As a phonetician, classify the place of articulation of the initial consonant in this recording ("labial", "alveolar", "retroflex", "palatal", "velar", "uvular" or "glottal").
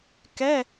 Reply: velar